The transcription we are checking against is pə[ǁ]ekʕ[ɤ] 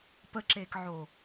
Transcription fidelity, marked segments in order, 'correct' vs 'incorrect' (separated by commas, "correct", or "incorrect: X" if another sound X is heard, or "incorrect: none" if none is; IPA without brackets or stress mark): correct, incorrect: o